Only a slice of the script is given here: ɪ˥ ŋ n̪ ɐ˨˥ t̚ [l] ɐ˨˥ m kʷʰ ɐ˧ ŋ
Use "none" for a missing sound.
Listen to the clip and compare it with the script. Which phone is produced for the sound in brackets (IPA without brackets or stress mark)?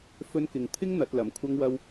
l